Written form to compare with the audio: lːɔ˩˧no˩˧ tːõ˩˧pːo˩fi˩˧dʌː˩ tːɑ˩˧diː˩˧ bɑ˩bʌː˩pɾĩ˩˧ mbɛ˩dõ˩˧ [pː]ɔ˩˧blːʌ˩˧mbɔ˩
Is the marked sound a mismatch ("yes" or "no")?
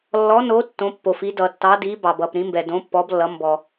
no